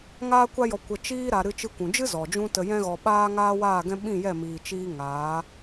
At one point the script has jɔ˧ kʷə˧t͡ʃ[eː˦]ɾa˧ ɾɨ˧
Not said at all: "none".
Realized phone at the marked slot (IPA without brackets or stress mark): iː˦